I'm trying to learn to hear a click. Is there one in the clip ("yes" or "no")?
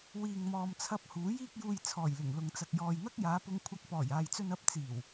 no